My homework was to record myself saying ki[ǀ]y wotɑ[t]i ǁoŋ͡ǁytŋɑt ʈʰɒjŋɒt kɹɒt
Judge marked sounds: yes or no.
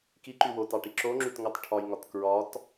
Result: no, no

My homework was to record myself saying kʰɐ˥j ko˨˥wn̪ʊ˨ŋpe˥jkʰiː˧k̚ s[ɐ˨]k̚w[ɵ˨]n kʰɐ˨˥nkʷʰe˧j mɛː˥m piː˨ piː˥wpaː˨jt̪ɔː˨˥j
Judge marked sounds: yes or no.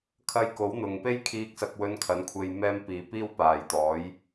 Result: no, no

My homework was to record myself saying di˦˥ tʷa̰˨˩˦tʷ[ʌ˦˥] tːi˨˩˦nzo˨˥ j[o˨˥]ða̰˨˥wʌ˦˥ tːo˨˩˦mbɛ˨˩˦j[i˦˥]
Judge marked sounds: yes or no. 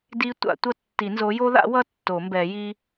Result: yes, no, yes

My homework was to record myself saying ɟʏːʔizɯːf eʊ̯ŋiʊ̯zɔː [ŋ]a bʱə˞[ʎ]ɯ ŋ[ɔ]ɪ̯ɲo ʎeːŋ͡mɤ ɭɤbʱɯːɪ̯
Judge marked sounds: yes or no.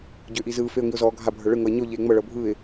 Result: no, no, no

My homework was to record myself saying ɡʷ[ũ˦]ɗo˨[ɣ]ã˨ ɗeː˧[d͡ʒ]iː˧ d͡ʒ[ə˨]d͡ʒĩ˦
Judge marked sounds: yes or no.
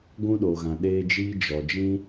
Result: yes, yes, yes, no

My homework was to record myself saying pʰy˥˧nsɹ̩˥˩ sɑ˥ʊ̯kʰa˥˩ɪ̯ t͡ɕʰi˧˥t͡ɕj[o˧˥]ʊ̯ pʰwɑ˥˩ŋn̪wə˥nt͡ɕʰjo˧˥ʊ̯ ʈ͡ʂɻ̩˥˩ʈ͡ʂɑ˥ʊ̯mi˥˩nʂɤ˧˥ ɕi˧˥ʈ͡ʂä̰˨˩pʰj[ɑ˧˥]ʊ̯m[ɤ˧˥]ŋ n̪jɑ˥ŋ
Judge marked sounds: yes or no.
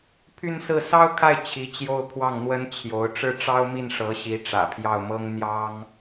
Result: no, no, no

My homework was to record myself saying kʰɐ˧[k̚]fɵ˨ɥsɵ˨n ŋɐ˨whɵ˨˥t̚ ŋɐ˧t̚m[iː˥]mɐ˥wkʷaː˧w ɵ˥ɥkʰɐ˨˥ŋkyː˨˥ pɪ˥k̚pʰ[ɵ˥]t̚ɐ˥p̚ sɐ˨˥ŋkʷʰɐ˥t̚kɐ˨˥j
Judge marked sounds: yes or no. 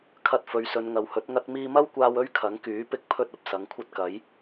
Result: no, no, yes

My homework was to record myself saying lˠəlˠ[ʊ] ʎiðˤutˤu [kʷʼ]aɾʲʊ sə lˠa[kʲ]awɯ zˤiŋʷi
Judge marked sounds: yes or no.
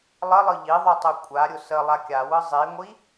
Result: no, yes, yes

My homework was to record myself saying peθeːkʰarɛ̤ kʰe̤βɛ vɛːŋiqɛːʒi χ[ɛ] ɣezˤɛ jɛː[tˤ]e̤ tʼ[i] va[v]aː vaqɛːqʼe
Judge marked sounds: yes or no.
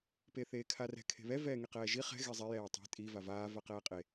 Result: no, yes, yes, yes

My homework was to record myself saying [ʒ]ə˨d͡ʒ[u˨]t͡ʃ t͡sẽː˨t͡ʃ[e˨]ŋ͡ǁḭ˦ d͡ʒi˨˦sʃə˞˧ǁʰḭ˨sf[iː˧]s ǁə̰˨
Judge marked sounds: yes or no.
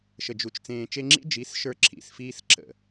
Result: no, yes, no, yes

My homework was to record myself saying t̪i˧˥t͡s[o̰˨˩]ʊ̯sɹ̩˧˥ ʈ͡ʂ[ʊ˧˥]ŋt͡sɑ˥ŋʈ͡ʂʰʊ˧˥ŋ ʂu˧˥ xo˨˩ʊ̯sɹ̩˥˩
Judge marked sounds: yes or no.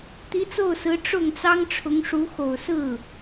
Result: no, no

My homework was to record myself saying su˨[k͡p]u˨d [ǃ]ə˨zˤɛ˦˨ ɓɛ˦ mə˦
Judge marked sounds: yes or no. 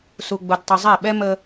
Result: no, no

